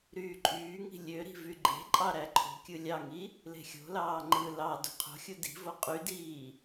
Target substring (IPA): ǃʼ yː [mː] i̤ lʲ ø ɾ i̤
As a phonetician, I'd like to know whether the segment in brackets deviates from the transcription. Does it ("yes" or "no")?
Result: yes